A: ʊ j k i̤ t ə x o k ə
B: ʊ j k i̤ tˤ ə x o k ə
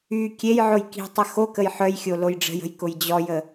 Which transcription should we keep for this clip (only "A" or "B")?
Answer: B